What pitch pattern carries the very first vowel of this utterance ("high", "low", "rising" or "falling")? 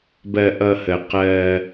low